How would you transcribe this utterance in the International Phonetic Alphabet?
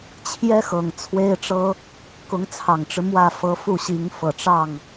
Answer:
t͡ɕʰ j ɛ˥ x ɤ˨˩ ŋ t͡sʰ w e˥ ɪ̯ ʈ͡ʂ ɤ˥ | k ʊ˧˥ ŋ t͡sʰ ɑ˨˩ ŋ ʈ͡ʂ ɻ̩˦ m w ä˥˩ f ɤ˧˥ f u˥˩ ɕ i˧˥ ŋ f ɤ˨˩ ʈ͡ʂ ɑ˥˩ ŋ

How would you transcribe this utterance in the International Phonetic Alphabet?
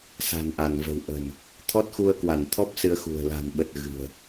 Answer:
s a̤˨˩ n ʔ a˧˩ n v ə̤˨˩ w ʔ ə̤˨˩ n | t̪ʰ ɔ˦˥ t̚ x u˧ ə̯ k w a˧˩ n t̪ʰ ɔ˦˥ p̚ s ɨ˧ ə̯ x ṳ˨˩ ə̯ l a̤˨˩ n ɓ ə˨˩ t̚ ɣ ɨ̤˨˩ ə̯

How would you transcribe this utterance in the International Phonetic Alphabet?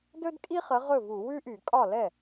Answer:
d ɵ˥ d kʼ i˥ χ ə˨˥ ʁ ɵ˥˩ v u˧˩˧ w ʉ˥ ʔ y˧˩˧ kʼ ɒ˥˩ l ɛ˥˩

